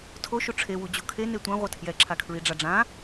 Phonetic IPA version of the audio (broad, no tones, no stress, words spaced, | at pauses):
tʰoʃu ʈ͡ʂʰewu d͡ʑukʰe netʷã ʁʷʌtʰjɛǁʰakʰɹi ɖ͡ʐaɖ͡ʐã